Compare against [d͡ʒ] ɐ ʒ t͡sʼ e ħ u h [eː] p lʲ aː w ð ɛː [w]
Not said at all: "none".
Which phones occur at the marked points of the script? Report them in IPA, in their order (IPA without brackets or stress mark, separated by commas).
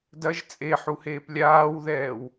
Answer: d, eː, w